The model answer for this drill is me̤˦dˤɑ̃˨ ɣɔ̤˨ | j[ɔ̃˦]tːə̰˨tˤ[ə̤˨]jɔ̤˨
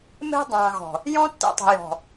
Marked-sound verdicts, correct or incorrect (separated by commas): correct, correct